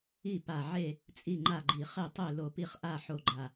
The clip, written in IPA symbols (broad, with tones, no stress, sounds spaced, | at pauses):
i˥˨ p a˧˩ ʕ e˥˨ | t͡sʼ i˥˨ ŋ͡ǃ a˥˨ ɡ͡ǃ i˧˩ χ e˥˨ tˤ ø˥˨ l o˧˩ p i˥˨ χ ʔ a˥˨ ħ o˥˨ ɡ͡ǃ a˧˩